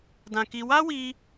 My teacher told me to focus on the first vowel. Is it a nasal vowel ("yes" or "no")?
yes